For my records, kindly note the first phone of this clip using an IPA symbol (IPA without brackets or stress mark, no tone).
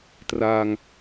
t